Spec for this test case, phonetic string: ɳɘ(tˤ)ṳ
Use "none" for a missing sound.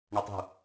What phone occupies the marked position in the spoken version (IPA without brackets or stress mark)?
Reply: tˤ